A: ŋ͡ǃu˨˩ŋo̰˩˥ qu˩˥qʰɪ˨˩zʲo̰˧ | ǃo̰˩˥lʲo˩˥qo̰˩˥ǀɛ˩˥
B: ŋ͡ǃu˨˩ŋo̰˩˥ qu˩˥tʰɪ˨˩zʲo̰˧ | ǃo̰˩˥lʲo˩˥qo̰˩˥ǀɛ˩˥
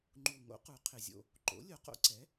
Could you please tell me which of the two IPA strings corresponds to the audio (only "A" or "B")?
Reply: A